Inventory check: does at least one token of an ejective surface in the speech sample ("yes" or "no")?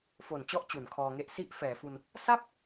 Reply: no